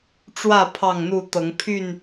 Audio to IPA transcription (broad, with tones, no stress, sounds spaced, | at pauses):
ʈ͡ʂ w ä˥˨ pʰ ɑ˥˨ ŋ n̪ u˥˨ t̪ ɤ˨˦ ŋ pʰ y˥˨ n